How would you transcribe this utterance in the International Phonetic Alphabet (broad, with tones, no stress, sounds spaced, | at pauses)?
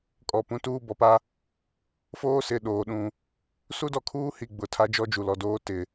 kʼ ɔ˨ p ũ˨˦ t uː˦ b ɔ˨ p a˦ | f oː˦ s ɪ˨ ɗ oː˨ ɗ ũ˨ | s u˦ d ɔ˨ kʰ uː˦ h i˨ ɡ͡b ʊ˨ tʰ a˦ d͡ʒ ɔ˦ d͡ʒ u˨ l ɔ˨ d oː˦ t ɪ˨